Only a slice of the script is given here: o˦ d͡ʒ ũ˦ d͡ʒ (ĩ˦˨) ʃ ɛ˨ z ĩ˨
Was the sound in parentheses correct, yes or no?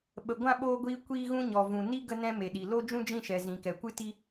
yes